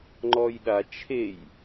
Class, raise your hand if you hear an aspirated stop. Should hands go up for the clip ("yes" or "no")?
yes